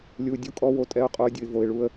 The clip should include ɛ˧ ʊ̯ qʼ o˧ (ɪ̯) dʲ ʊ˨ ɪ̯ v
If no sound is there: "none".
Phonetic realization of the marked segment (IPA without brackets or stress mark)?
ə̯